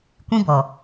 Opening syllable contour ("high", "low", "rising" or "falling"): high